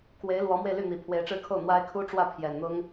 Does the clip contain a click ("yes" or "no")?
no